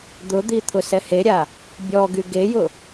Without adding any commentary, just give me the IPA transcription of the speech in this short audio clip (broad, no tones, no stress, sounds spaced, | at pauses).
d̪ ʊ d̪ i t̪ʰ ʊ s ɛ h e ɾʲ a | bʲ ɔ ɡ y ɡ e j ʊ